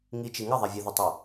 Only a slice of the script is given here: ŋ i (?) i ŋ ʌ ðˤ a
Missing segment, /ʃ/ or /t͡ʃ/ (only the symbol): t͡ʃ